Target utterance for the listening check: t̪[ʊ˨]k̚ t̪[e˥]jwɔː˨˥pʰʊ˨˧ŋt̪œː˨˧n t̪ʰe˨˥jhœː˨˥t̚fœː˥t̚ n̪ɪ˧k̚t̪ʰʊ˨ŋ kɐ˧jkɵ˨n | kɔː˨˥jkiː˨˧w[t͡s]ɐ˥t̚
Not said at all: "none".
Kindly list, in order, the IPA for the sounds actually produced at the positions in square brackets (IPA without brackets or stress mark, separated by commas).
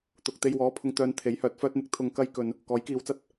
ʊ˨, e˧, t͡s